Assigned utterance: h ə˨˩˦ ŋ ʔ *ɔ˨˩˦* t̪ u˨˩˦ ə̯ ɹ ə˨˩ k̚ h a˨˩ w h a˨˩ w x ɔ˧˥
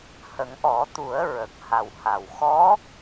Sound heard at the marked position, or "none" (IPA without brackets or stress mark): ɔ˨˩˦